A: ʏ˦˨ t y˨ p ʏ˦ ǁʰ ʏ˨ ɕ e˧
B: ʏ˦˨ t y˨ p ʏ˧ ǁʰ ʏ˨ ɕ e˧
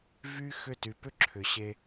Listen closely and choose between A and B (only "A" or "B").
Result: A